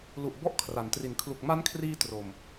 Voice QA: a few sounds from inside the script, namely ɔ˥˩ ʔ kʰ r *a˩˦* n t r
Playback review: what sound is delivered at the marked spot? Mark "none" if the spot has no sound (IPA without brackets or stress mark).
a˩˦